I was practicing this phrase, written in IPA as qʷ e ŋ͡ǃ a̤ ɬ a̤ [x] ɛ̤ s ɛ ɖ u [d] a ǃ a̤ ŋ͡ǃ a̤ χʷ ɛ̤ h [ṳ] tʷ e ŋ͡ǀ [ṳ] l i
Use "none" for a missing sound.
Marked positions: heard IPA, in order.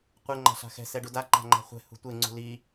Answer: x, d, ṳ, ṳ

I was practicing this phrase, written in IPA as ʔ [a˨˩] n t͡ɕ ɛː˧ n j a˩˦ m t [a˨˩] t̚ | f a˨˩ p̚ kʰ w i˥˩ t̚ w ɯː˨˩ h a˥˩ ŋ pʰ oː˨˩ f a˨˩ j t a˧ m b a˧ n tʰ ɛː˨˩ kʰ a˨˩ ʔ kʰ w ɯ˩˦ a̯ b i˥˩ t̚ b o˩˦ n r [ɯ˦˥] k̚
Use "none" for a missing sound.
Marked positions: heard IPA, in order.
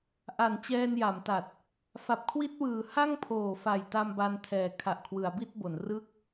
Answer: a˨˩, a˨˩, ɯ˥˩

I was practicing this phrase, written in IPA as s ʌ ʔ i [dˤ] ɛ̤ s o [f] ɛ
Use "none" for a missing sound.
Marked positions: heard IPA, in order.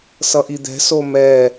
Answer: d̪, m

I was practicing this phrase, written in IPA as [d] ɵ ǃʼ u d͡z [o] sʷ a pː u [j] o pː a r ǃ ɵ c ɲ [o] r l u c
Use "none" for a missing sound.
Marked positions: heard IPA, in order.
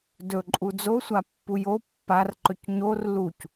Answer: d, o, j, o

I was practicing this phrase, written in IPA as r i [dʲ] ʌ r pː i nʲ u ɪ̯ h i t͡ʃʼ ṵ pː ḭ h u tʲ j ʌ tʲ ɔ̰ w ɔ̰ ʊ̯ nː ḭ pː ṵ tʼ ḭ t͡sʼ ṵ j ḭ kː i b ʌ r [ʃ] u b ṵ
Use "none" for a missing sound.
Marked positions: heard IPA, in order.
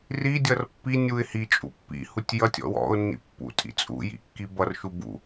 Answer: dʲ, ʃ

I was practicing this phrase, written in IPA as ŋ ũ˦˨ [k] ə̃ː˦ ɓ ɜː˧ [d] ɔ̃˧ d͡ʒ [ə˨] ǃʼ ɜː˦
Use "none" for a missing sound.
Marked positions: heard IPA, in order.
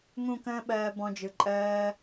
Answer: k, b, ɯ˨

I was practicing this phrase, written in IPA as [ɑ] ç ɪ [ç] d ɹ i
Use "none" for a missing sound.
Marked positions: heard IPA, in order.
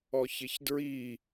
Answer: ɔ, ç

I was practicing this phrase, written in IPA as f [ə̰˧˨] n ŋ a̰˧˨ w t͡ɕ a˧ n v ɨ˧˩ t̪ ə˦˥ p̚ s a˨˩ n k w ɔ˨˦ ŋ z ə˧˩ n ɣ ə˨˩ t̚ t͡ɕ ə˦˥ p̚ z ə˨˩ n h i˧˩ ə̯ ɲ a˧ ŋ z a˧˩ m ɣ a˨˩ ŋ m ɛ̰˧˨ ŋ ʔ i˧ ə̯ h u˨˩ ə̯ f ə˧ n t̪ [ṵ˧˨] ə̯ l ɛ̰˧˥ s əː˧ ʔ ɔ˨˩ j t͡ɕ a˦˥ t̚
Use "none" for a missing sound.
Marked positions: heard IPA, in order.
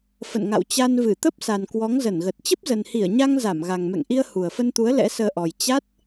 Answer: ə̰˧˨, u˨˦

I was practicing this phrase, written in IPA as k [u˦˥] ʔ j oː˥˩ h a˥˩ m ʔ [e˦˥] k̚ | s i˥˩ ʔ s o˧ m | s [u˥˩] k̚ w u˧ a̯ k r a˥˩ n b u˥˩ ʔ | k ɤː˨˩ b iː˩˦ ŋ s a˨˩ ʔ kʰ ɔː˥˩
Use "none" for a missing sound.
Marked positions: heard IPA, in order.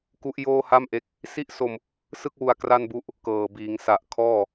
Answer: u˦˥, e˦˥, ɯ˥˩

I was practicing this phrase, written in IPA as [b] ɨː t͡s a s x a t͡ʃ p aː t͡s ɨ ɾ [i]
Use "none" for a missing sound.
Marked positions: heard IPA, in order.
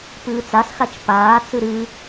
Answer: p, ɨ

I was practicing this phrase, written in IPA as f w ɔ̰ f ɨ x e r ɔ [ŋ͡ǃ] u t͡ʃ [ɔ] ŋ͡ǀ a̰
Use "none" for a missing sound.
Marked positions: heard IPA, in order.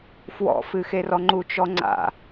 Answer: ŋ͡ǃ, ɔ

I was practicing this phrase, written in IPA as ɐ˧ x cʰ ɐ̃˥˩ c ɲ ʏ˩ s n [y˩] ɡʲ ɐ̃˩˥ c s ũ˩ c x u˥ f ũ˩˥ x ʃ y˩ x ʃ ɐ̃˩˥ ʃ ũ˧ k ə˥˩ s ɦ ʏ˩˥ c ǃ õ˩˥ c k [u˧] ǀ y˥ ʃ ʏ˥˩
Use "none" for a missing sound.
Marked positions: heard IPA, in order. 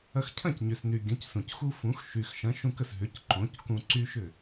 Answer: y˩, ũ˧

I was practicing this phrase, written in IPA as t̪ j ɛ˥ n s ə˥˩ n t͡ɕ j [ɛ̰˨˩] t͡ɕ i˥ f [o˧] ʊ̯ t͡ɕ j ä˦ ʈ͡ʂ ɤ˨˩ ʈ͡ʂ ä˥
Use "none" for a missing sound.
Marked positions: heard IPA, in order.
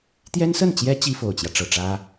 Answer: ɛ˥, o˨˩

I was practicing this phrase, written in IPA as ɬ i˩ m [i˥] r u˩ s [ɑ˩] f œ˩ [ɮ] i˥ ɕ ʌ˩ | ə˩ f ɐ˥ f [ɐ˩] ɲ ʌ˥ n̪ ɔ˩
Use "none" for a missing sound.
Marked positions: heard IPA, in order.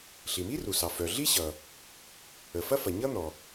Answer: i˥, ɑ˩, ɮ, ɐ˩

